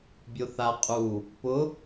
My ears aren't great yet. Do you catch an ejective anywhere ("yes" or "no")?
yes